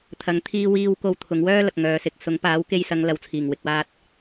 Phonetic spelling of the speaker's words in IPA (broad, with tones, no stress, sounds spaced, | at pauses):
t̪ʰ ɐ˨ ŋ t̪ʰ iː˧ w iː˧ w k o˧ w t̪ʰ ʊ˨˧ ŋ w œː˥ l ɐ˨ k̚ ŋ œː˨ s ɪ˨ k̚ s ʊ˨˥ ŋ p aː˨˥ w k e˧ j s ɐ˨˧ ŋ l ɐ˨˧ w t͡sʰ iː˨˩ ŋ w ɪ˨ k̚ w aː˧ t̚